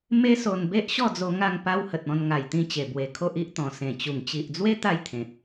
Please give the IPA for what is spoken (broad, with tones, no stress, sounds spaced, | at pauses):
m e˦ s o˧ n b e˦ ʔ ɕ ɔ˥˧ d͡z o˧ ŋ a˥˧ ŋ p a˧ w h ə˨ t̚ ɔ̃˧ n ŋ a˨˩ j t̪ ĩ˧ t͡ɕ e˨˩ b w e˨˩ kʰ o˦ ʔ i˦ ʔ t̪ ɔ̃˨˩ s ẽ˨˩ t͡ɕ u˨˩ ŋ t͡ɕ i˨ ʔ d͡z w e˦ t̪ a˥˧ j t̪ʰ ẽ˨ t̚